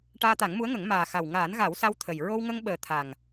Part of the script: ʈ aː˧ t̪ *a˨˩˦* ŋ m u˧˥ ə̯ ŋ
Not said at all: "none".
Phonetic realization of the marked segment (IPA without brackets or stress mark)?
a˨˩˦